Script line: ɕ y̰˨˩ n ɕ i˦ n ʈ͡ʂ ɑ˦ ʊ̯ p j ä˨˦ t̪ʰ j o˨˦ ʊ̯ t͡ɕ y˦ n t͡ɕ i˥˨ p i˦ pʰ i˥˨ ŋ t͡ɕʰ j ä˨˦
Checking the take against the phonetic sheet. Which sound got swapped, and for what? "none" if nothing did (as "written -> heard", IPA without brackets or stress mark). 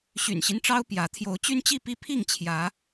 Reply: none